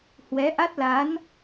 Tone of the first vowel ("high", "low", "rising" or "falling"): rising